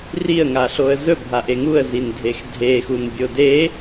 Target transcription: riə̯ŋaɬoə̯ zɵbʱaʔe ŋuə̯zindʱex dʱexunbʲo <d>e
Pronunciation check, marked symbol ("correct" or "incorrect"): correct